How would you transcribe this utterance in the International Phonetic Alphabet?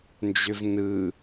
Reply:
n d͡ʒ ø v n ɯ

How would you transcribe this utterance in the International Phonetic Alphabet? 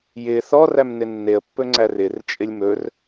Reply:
j ɪ θ ɔ r æ m n ɪ nː e ə̯ pː ɵ ŋ͡ǀ æ r ɪ r t͡ʃʼ ɪ lʲ m ɵ r

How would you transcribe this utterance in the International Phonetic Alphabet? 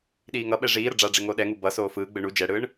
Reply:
ɗ iː ŋ ʌ ɓ ɛ ʐ iː ɾ ʌ ɖ͡ʐ a ɖ͡ʐ e ŋ o ɗ ɛ ŋ u b ʌ s oː f ɯː ɡ͡b ɯ ɳ u d͡ʒ ɛ ɽ ɯː ɳ

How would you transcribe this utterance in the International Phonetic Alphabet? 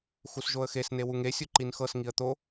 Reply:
x u s ʒ o ə̯ x e s n e w u ŋ e sʲ u ǃ i n x ɤ s ŋ i ə̯ t̪ o

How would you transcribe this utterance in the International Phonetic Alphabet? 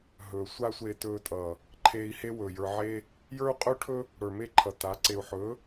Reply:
ɦ ɵː˨ sʷ a˦ sʷ eː˧ t ɵː˧ tʼ ʌː˨ | ǃʰ eː˧ i̯ h e˦ w ɵː˨ j ə˞˧ ʕ eː˦ | j ə˞˦ u̯ qʼ ɵː˦ ʈʰ ɵ˦ | ɽ ə˞˨ m e˦˨ ǃʰ ʌ˨ t a˨˦ ǀ e˧ u̯ ħ ɵː˨˦

